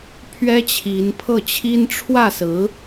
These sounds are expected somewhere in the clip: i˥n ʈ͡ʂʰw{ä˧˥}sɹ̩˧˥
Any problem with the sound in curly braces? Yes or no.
yes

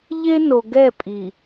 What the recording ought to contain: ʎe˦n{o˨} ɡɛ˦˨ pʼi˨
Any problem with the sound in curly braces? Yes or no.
no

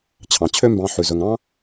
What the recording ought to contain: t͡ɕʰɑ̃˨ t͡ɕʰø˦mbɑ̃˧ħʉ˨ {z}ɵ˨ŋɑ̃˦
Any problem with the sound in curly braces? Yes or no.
no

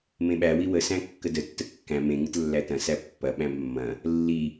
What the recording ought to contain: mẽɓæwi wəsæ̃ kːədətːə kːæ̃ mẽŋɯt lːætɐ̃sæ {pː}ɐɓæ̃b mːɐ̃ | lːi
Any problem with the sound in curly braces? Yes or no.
no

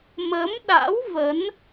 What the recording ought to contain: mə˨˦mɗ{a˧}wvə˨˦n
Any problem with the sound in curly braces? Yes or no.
yes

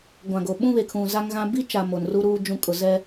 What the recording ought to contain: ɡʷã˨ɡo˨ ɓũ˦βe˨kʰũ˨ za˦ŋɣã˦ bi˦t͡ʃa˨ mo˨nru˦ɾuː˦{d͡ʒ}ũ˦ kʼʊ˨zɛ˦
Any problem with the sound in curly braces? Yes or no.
no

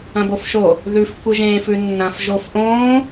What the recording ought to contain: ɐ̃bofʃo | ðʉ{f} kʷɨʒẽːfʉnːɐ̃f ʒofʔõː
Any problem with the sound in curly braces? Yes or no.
no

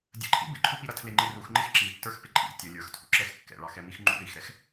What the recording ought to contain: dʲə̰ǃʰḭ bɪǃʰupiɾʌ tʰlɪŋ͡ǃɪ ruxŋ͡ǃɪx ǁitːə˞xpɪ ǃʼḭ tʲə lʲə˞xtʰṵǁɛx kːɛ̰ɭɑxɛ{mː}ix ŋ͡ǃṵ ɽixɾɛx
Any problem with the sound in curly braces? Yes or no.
yes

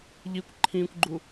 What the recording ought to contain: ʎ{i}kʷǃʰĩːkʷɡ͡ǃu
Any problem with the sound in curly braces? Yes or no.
no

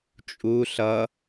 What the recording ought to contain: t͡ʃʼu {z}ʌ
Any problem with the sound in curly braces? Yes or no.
yes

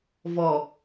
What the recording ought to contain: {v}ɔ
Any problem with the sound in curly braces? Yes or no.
no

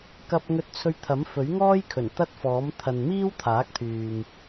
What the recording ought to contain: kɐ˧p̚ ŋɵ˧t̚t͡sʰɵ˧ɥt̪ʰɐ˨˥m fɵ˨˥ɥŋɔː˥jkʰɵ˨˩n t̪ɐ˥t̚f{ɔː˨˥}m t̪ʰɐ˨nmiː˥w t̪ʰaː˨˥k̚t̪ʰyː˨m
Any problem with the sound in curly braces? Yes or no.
no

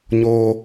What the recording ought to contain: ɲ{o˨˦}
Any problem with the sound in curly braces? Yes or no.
yes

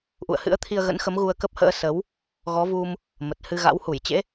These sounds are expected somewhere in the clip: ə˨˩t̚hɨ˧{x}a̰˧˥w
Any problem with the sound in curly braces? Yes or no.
yes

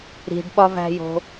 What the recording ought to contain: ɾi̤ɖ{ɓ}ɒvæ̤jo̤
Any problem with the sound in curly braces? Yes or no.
no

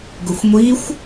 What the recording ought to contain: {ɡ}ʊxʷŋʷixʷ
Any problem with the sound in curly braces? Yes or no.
no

